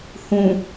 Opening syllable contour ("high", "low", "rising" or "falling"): low